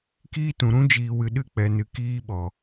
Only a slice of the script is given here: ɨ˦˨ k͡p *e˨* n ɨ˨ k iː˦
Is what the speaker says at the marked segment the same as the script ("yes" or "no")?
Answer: no